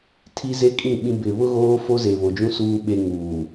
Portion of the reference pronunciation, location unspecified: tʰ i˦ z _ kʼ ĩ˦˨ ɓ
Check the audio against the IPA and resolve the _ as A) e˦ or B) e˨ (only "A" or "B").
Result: A